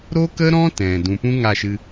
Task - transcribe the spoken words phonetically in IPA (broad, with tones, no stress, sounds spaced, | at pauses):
ɾ o˦ k ə˦ ɾ ɔ̃˦ t ɛ̃˨ d ũ˨ p ũ˦ ŋ a˦˨ ʃ ɨ˧